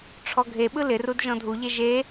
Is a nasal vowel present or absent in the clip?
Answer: present